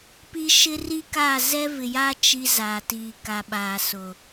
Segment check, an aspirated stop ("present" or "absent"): absent